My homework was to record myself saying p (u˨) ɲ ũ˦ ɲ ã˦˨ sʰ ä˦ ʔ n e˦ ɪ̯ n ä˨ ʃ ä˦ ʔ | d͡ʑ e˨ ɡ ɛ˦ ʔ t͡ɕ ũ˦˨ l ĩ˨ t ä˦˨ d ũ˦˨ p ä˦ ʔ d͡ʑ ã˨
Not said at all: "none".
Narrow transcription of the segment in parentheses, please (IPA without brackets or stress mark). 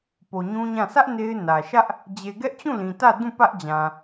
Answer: o˨